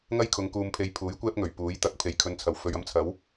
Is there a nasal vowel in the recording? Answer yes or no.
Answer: no